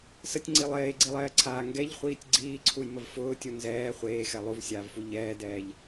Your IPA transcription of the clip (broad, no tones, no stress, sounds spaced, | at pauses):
s ə tʲ ŋ͡ǀ i lˠ eː ɡ͡ǀ i lˠ ɛː ǀʰ aː ŋ ɡ ɛ ʎ χʷ iː tʲ ɡ͡ǀ iː ǀʰ u j m ə v f ʊː tʲ u n z ɛː χʷ eː x ɛ lˠ u v sʲ aː v f u ʎ ɛː d ɛː ʎ